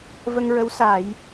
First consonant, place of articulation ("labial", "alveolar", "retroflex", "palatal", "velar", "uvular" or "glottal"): labial